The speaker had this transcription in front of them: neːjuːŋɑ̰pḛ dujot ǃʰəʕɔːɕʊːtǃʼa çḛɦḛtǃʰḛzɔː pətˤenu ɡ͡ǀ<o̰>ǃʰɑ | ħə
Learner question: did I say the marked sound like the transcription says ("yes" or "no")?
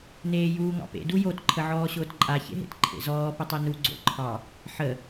yes